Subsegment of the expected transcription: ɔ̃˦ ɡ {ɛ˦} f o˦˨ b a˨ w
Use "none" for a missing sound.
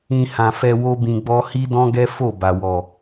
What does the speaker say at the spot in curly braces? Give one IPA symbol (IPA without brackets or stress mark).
ɛ˦